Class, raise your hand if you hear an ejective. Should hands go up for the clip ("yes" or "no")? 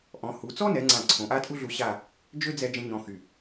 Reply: yes